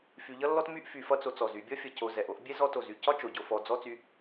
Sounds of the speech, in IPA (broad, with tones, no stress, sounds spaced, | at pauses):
f y˨ ʎ ʌ˥ lː ɔ˥ t m y˥ ʔ f y˨ f ʌ˦ t͡s o˨ t͡s ɔ˩ z y˨ bʲ ɔ˥ fʲ ʌ˨ c o˨ z ɛ˩ ʔ o˦ ʔ bʲ ɛ˥ z ɔ˦ t o˩ z y˩ c ɒ˥ t͡ʃ o˩ ɟ o˨ f ɔ˨ d͡z ɔ˥ t͡s y˦